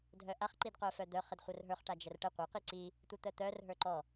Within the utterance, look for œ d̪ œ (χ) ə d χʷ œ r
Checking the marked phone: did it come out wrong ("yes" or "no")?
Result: no